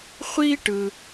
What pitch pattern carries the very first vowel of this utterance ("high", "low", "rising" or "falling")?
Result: high